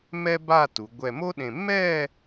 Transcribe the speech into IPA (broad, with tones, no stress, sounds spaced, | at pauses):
m ɛ˥ b a˥˧ t u˩˧ ɡʷ ɛ˧˩ m o˥ ɗ ẽ˧˩ m ɛ˥˧